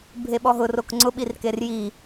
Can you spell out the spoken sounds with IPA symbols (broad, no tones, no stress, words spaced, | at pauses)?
bʱeɓɔɦʊ rokŋ͡ǀʊ ɓirkerji